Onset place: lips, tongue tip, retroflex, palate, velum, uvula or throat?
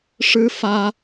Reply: retroflex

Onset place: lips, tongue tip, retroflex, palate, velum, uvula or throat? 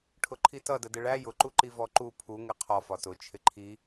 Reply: retroflex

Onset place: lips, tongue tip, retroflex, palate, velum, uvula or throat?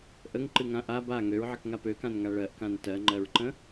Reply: throat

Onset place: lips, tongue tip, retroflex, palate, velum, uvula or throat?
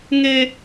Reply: velum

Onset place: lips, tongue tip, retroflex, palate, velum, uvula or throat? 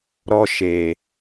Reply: tongue tip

